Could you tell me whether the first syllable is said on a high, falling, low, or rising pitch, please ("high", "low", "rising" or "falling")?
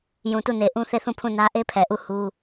low